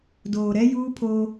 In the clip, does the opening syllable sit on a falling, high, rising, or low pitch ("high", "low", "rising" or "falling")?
low